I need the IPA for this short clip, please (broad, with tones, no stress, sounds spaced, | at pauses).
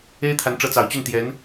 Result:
e˥ ɪ̯ t̪ʰ a˧˥ n ʈ͡ʂ ɤ˧˥ t͡s ɑ˨˩ ʊ̯ t͡ɕ y˥˩ n t̪ j ɛ˧˥ n